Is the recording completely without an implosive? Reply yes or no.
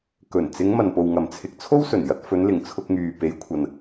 yes